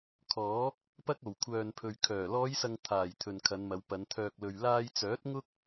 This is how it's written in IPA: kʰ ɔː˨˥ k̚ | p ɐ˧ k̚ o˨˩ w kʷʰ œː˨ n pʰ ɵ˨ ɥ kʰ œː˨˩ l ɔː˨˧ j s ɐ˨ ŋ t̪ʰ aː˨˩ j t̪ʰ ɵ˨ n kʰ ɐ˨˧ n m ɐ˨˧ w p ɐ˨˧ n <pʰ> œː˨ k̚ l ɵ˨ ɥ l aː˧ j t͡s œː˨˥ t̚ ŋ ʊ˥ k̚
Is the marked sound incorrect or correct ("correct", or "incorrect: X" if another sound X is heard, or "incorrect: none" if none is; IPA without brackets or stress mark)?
incorrect: t̪ʰ